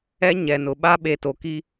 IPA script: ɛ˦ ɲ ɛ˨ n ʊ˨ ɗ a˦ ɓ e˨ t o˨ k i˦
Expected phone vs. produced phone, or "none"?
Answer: ɗ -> ɓ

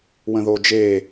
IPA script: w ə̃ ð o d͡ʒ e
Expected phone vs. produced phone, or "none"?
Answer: none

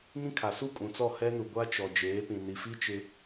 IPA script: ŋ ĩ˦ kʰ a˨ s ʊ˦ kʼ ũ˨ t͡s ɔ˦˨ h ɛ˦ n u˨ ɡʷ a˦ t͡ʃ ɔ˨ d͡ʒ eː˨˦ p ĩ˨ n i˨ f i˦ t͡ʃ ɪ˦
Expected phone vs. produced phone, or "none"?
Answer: ʊ˦ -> u˦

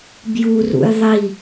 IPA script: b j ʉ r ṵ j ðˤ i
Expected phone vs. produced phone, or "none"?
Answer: ʉ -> u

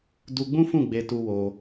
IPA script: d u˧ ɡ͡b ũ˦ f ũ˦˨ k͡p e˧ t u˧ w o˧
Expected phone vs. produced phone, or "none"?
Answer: k͡p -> ɡ͡b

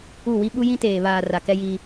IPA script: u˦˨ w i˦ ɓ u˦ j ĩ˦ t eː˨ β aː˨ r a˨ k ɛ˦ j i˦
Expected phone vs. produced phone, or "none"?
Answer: none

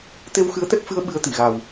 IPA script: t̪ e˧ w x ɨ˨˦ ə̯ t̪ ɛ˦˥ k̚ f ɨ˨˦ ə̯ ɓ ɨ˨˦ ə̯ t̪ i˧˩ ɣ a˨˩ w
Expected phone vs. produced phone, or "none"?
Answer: none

